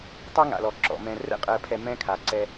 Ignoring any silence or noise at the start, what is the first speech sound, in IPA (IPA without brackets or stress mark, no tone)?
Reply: tˤ